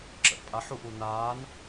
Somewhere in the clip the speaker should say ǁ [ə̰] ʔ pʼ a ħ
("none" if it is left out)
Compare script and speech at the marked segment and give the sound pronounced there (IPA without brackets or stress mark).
ə̰